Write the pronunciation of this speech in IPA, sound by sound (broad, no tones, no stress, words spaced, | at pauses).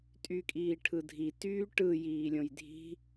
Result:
tʼykʼiːʈʰɯdʱi tyːʈɯ jiːlʲõjdʱi̤